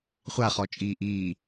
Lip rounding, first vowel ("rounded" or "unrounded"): unrounded